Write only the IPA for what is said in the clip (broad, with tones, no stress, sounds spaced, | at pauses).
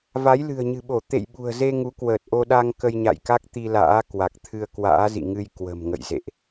v a˨˦ j l ɨ̤˨˩ ə̯ ɲ ɨ̤˨˩ ɓ o˧˩ t̪ ḛ˧˨ j ɓ ṳ˨˩ ə̯ z e˧ ŋ u˨˦ k w əː˨˩ t̚ ʔ o˧ ɗ a˧ ŋ k ə˧ j ɲ a̰˧˨ j k a˦˥ k̚ t̪ i˧ l a̰ː˧˥ k w a˨˩ k̚ t̪ʰ ɨ˧ ə̯ k w a̰ː˧˥ z ḭ˧˨ ŋ ɨ˧ j k w ə̤˨˩ m ŋ ə̰˧˨ j z ḛ˧˨ ʔ